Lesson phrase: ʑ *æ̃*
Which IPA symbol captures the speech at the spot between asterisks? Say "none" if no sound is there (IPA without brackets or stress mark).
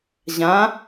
ã